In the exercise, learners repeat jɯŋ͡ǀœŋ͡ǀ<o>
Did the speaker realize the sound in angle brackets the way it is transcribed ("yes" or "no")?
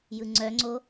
yes